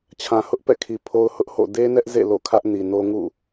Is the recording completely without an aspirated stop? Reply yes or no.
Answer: no